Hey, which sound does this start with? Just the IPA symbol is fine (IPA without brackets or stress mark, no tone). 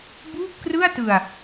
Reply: b